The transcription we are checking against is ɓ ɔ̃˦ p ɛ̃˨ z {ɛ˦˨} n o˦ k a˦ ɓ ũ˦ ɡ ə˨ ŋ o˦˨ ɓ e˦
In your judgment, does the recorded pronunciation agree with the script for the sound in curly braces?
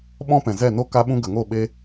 yes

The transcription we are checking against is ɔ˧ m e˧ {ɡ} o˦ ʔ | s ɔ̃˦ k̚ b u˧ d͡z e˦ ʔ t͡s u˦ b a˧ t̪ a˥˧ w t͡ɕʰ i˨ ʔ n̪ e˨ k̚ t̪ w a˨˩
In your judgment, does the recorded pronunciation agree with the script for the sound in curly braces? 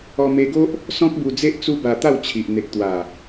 yes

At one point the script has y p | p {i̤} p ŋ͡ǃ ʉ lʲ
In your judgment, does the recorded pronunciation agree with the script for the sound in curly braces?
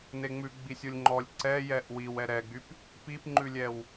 no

